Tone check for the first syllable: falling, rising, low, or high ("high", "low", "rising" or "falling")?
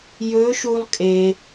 rising